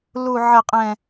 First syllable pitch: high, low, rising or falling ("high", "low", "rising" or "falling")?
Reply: low